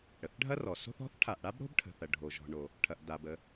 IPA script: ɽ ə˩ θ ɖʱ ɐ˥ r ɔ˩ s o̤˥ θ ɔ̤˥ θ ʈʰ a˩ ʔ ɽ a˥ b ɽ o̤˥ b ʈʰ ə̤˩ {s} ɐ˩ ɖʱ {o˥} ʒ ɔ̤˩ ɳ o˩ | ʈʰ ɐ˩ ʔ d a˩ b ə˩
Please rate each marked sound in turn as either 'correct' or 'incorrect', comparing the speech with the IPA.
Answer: incorrect: θ, incorrect: o˩

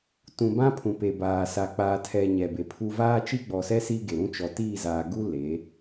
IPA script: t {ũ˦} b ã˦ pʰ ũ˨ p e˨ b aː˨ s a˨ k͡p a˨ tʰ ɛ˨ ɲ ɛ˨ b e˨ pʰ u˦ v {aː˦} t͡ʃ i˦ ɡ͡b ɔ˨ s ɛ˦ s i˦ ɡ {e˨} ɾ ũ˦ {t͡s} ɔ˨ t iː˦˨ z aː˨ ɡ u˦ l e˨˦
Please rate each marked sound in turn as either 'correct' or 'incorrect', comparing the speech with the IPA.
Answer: incorrect: ũ˨, correct, correct, incorrect: t͡ʃ

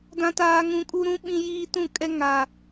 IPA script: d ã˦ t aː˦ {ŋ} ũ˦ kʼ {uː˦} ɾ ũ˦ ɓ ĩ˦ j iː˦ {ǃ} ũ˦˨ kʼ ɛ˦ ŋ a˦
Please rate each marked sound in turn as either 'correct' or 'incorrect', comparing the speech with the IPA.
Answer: correct, incorrect: u˦, incorrect: t

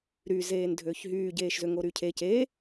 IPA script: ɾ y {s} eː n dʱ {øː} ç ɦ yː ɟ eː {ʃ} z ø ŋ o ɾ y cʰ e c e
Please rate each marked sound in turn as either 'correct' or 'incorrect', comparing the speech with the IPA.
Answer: incorrect: z, correct, correct

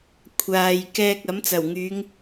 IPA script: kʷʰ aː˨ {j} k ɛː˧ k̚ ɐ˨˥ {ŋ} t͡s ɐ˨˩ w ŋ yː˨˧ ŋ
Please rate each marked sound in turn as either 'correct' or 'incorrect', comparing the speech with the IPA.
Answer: correct, incorrect: m

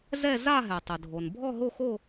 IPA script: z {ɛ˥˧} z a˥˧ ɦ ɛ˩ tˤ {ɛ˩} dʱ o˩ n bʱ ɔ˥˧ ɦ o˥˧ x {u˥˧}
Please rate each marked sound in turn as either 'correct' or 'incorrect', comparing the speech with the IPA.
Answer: correct, incorrect: ə˩, incorrect: o˥˧

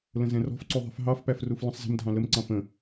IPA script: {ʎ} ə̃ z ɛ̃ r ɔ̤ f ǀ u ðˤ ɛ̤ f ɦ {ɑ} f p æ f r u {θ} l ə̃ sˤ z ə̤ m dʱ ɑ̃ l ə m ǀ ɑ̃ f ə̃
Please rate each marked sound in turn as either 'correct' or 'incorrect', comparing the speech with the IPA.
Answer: incorrect: l, correct, incorrect: f

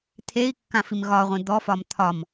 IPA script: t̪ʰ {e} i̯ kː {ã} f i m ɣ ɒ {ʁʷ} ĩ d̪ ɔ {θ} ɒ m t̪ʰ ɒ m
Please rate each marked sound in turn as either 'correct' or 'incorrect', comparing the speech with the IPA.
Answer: correct, correct, correct, incorrect: f

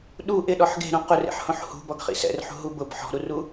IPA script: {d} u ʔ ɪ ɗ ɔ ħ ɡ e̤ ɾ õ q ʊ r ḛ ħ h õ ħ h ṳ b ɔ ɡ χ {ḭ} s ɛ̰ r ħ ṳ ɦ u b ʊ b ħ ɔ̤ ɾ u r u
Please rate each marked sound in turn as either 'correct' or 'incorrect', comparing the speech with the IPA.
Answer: incorrect: ɗ, correct

